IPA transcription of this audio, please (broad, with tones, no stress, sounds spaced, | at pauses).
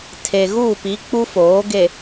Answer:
tʰ e˨ ɣ u˦˨ p i˨˦ k͡p u˦ f oː˨˦ ɡ e˨